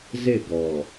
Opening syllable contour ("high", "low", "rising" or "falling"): falling